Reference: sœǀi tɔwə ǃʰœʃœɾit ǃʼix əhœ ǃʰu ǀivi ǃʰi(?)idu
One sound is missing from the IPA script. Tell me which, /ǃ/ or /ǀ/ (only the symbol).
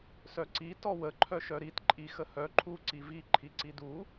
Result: ǀ